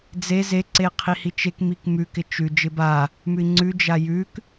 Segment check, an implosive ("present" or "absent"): absent